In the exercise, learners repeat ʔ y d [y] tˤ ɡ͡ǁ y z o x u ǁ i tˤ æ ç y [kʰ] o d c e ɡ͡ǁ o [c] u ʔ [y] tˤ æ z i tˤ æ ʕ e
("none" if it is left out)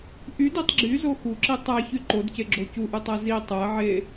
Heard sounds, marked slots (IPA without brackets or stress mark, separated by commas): i, ǃ, c, y